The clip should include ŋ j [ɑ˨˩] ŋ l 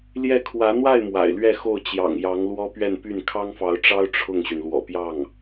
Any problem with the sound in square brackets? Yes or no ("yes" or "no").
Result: yes